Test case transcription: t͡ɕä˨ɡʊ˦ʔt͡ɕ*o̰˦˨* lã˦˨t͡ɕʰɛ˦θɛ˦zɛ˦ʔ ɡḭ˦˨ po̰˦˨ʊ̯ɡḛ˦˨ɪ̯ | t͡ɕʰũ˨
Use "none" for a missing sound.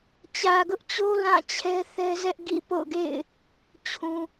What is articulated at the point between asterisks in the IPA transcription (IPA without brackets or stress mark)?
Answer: o˦